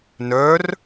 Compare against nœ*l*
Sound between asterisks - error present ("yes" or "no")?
yes